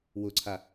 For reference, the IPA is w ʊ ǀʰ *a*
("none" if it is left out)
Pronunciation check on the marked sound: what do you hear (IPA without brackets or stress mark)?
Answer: a